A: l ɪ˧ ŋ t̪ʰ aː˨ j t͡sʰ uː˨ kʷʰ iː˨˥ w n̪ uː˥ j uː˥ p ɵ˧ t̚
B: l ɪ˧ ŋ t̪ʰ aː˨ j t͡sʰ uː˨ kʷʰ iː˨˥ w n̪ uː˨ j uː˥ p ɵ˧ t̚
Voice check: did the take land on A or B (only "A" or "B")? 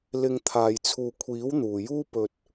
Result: B